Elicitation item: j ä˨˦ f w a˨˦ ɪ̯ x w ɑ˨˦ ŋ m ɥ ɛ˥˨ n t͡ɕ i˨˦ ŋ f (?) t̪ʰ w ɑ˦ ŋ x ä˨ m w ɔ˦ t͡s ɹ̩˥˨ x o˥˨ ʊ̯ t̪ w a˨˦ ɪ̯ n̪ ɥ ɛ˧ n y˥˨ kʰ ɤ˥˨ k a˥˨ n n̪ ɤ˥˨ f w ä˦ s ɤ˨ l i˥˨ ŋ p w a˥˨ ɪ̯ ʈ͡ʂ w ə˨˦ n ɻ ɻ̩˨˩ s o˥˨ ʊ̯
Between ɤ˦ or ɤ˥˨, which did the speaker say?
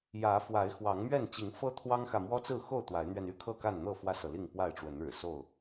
ɤ˦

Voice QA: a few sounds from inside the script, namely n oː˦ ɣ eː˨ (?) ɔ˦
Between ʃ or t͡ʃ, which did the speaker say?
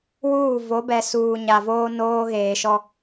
ʃ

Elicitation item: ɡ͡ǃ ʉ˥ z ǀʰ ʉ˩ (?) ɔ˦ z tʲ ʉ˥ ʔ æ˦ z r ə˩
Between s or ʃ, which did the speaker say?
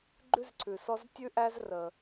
s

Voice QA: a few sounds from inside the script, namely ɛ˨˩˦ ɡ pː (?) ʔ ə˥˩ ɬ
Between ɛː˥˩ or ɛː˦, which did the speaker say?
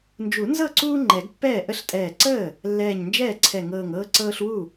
ɛː˥˩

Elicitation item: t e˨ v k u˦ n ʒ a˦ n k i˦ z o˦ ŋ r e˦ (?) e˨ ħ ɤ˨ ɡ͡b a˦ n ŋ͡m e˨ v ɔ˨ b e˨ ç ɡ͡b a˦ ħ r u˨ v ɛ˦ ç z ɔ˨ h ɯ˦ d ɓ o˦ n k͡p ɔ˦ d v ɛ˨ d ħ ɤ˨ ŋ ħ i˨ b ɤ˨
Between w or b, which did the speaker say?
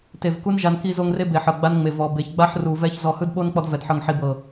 b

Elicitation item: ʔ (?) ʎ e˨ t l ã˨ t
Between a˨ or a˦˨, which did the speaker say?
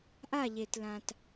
a˦˨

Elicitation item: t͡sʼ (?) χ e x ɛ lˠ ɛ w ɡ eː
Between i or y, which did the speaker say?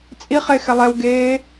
i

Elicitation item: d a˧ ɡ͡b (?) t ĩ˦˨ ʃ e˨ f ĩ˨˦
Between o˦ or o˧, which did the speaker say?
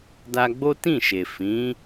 o˦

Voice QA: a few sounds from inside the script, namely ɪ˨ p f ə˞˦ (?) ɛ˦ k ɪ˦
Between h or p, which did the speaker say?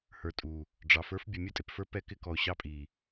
p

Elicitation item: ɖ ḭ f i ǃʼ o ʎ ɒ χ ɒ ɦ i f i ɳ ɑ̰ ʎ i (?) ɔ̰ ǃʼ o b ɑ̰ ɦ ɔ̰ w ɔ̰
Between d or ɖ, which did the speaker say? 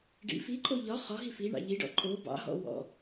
ɖ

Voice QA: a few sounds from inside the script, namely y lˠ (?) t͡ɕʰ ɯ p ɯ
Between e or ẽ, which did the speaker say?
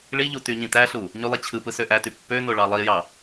e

